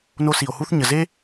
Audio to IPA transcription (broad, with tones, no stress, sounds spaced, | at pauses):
n o˦ s i˨ o̯ h u˥ θ ɲ ə˨ z e˥